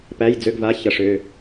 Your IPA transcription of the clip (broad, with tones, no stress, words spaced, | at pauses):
pæ˧˥˧jd͡zø˧˥˧ɡva˧˥˧ çʌ˦˥ʂø˧˥˧